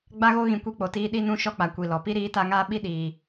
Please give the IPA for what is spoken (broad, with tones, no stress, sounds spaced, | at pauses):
ɡ͡b a˦ ɣ o˦ ɣ ĩ˧ kʷ i˦ k͡p o˨ t iː˦ ɗ i˦ n ũ˦ ʃ ɔ˦ k͡p a˨ kʷ i˨ l ɔ˨ p i˦ ɾ iː˨˦ t a˧ ŋ aː˦ ɓ i˦ ɗ iː˧